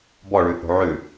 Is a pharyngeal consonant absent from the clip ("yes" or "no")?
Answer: no